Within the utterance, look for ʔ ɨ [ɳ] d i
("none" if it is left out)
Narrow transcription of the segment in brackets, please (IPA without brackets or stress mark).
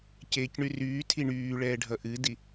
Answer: none